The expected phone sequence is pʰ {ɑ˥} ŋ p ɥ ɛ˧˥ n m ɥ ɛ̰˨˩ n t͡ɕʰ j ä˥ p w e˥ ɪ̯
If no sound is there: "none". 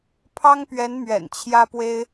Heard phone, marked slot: ɑ˥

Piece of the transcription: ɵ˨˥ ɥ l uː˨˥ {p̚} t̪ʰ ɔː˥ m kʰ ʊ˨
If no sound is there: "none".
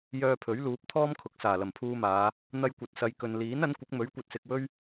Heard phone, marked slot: p̚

